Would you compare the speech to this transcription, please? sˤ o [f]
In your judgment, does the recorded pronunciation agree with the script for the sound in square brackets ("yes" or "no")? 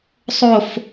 yes